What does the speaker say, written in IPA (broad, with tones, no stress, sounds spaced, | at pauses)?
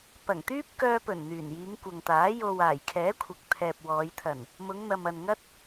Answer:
p ɐ˨˩ ŋ t̪ yː˥ p̚ k œː˧ p ɵ˨˩ n n̪ yː˨˩ n j iː˨˧ ŋ kʷ ɐ˨ ŋ t̪ aː˨˥ j o˨ w aː˨˩ j kʰ ɛː˨˥ kʷʰ ɐ˨ k̚ t̪ʰ ɛː˨ p̚ w ɔː˨˧ j t̪ʰ ɐ˨˩ n | m ʊ˨˧ ŋ n̪ ɐ˨ m ɐ˨ n ŋ ɐ˧ t̚